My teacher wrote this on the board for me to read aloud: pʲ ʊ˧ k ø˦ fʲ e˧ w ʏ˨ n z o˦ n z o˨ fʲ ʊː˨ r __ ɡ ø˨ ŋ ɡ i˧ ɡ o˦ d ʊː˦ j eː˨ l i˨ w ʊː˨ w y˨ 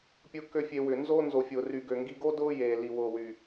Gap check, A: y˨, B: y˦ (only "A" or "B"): A